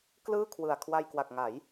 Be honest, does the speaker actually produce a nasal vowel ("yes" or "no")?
no